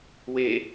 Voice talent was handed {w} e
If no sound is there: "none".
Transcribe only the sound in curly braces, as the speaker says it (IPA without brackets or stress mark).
w